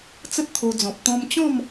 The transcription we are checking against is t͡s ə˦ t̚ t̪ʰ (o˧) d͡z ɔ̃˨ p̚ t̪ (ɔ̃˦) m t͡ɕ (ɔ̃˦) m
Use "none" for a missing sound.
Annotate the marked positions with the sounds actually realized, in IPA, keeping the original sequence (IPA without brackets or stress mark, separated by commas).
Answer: o˧, ɔ̃˧, ɔ̃˥˧